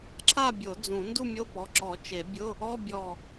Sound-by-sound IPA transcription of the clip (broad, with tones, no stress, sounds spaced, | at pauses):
ǁʰ a˥˨ bʲ o˨˩˦ d͡z ũ˨˩˦ n d u˥˨ mʲ o˧˥˧ p ɔ˩˧˩ ǁ ɔ˨˩˦ t͡ʃ e˨˩˦ bʲ ʊ˧˥˧ | ɔ˧˥˧ bʲ ɔ˧˩